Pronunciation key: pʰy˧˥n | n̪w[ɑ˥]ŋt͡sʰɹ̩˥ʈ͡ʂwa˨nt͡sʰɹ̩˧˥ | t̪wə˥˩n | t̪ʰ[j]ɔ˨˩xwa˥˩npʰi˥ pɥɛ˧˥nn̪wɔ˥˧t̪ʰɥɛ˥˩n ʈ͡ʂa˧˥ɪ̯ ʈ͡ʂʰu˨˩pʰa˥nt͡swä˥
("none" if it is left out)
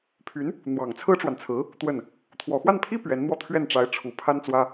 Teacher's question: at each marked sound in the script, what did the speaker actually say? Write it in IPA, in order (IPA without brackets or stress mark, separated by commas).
ɑ˨˩, w